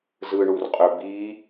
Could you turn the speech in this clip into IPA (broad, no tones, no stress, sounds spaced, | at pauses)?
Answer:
z ɯ ɳ u r qʼ ø b i